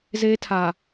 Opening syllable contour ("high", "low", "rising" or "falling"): high